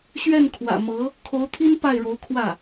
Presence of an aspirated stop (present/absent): present